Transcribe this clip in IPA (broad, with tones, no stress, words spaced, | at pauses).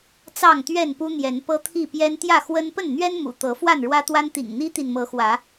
t͡sɑ˥˨ŋt̪ɥɛ˥˨npu˦n̪jɛ˨˦n pɤ˦t̪ʰi˥˨pjɛ˦n t̪jä˥˨xwə˦n pə˥˨nn̪ɥɛ˦n mṵ˨˩t̪ɤ˨˦ fwa˥˨nɻwä˦t̪wa˦nt̪ḭ˨˩ŋ n̪i˦t̪i˨nmɤ˨˦xwä˨˦